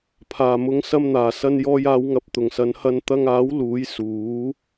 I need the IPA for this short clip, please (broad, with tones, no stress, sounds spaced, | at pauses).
pʰ aː˨˩ m ʊ˨˧ ŋ s ɐ˧ m n̪ aː˨˩ s ɐ˧ n j ɔː˧ j aː˨˧ w ŋ ɐ˨˥ p̚ t̪ ʊ˨˩ ŋ s ɐ˨˧ n h ɐ˧ n t̪ ɐ˧ ŋ aː˨˥ w l uː˨˥ j s uː˨˥